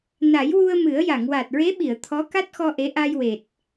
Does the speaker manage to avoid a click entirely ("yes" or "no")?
yes